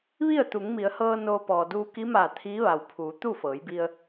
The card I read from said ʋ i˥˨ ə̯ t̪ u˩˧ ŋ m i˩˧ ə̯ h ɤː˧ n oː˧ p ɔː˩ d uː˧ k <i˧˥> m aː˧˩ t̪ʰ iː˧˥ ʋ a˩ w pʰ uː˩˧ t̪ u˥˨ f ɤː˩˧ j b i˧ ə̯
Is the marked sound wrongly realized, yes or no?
no